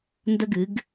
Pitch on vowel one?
high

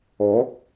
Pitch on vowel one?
rising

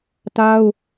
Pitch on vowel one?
high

